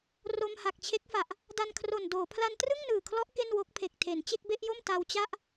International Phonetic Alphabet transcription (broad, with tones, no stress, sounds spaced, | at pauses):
r o˧ m h a˨˩ k̚ t͡ɕʰ e˦˥ k̚ f a˨˩ ʔ | d a˧ n kʰ r o˨˩ n d oː˩˦ pʰ l a˧ n t r ɯ˥˩ ŋ n ɯː˨˩ kʰ l ɔ˦˥ ʔ k e˥˩ n w o˦˥ k̚ pʰ e˨˩ k̚ tʰ e˩˦ n t͡ɕ e˥˩ k̚ b e˥˩ ʔ j o˥˩ m t a˧ w t͡ɕ a˥˩ ʔ